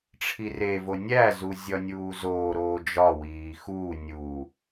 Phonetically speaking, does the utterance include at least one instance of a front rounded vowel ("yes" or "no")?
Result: no